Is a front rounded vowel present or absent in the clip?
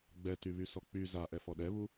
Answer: present